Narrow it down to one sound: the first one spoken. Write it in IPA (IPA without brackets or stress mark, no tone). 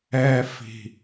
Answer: ɛ